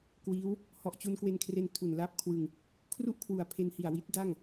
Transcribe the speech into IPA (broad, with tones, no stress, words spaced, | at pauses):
kwiː˦˥w | hɔ˨˩ʔt͡ɕu˧nkwe˧nkʰre˧n tʰu˨˩n la˥˩p̚ kʰwɯ˧ŋ | kʰru˥˩ʔkʰwu˨˩a̯pʰe˧nhi˨˩a̯ wi˦˥t̚da˥˩ŋ